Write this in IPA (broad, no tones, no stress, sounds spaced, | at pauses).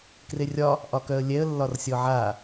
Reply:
k r e rʲ ɒ | ʔ ɒ k œ ə̯ lʲ ɛ ə̯ lː ɒ r sʲ ɔ ʕ a